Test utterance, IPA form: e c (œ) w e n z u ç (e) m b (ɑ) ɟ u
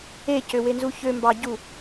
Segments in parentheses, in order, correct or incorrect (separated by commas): incorrect, incorrect, correct